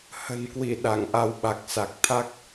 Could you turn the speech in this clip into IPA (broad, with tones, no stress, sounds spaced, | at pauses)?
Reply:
h ə̤˨˩ n k w i˧˩ ɗ a˧˩ ŋ ʔ a˨˦ w ɓ a˨˩ k̚ s a˨˩ k̚ t̪ʰ a˦˥ k̚